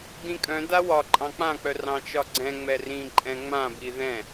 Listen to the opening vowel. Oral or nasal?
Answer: nasal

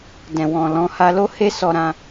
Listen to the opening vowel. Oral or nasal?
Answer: nasal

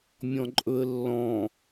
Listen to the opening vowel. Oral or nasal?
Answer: nasal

